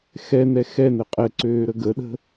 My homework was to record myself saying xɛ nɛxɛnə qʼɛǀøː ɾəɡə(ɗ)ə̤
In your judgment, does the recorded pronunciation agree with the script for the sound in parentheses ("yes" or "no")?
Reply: yes